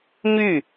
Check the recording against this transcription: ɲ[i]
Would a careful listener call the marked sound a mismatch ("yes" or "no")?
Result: yes